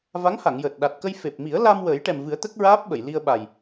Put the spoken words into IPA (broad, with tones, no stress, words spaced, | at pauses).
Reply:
va˧˥ŋha˨˩˨ŋjəː˨˩t̚ ɗa˨˩t̚kə˧j fe˨˩p̚mi˨˩˦ə̯ la˧m wəː˨˩˦jʈɛ˨˩mvɨ˨˩˦ə̯ t̪ə˦˥k̚ɹaː˦˥p̚ɓə˨˩˨j li˧ə̯ɓa˨˩j